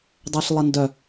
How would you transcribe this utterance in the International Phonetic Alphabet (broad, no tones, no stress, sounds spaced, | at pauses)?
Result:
dˤ ɛ ɬ lˠ ə n d œ